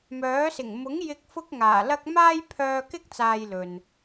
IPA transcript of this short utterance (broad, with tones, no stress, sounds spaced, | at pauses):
m œː˨˥ s ɪ˨˩ ŋ m ʊ˨˥ ŋ j ɪ˧ k̚ f ʊ˥ k̚ ŋ aː˨˩ l ɐ˥ k̚ m aː˥ j pʰ œː˧ k ɪ˥ k̚ t͡s aː˨ j l ɵ˨ n